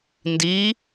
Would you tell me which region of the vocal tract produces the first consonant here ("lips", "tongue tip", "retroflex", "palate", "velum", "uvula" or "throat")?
tongue tip